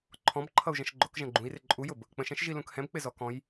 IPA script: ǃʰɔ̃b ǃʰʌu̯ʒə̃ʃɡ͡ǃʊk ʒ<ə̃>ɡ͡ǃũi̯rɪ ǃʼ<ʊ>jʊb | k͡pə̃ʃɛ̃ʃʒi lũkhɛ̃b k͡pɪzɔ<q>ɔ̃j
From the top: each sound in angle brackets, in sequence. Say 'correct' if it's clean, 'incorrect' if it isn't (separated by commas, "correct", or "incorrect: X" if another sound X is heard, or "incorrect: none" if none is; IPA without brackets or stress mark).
correct, incorrect: u, incorrect: k